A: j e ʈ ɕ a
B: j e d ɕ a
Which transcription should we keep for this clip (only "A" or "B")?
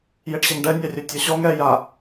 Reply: A